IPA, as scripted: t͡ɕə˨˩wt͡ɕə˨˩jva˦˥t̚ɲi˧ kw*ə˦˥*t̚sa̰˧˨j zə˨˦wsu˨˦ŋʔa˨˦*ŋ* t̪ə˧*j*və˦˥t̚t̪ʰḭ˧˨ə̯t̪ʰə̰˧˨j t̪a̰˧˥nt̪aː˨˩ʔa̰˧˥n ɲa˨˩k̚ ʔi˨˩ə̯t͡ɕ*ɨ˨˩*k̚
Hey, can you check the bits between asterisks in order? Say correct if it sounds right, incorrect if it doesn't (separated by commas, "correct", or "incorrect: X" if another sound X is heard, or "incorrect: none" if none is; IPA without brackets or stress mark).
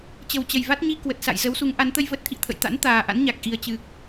incorrect: ə˨˩, incorrect: n, correct, correct